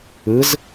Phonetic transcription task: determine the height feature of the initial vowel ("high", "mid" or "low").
high